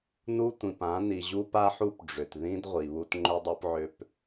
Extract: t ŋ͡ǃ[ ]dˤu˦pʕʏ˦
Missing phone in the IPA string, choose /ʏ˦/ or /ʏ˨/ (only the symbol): ʏ˦